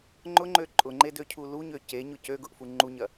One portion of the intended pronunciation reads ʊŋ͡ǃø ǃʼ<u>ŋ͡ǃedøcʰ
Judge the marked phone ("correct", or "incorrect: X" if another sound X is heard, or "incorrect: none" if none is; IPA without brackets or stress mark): incorrect: ʊ